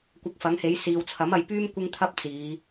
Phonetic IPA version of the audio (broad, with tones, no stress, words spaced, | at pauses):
kʷɐ˧k̚fɐ˨˥ŋhe˨˥j siː˨wt͡sʰɐ˨˥mɐ˨˧jpyː˥m kʷɪ˥ŋt̪ʰɐ˥p̚ t͡siː˨˧